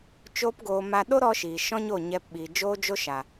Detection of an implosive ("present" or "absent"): present